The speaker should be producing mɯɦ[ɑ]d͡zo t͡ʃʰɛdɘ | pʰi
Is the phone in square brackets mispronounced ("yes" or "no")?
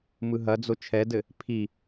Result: yes